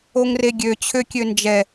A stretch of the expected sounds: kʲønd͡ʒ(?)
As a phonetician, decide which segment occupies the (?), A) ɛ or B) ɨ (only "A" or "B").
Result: A